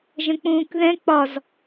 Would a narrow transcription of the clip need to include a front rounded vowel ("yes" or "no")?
no